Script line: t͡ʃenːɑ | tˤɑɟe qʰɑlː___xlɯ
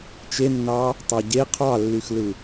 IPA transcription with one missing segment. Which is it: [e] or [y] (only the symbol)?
y